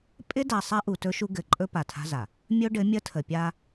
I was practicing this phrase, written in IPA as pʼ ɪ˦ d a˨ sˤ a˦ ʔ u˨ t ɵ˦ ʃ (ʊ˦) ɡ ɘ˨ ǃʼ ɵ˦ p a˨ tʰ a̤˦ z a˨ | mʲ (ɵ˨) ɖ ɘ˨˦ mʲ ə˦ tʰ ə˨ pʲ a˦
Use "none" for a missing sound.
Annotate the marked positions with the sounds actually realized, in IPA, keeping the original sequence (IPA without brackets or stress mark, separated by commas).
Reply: u˦, ɵ˦